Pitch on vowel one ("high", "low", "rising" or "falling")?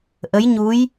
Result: rising